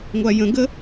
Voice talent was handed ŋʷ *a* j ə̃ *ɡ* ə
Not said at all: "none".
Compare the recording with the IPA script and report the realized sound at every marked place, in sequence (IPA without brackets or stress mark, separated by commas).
a, ɡ